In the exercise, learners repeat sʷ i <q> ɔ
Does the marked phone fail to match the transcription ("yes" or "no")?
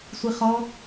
yes